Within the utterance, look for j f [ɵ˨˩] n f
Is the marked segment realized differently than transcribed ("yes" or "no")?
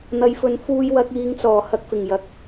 yes